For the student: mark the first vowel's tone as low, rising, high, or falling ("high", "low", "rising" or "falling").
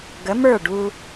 rising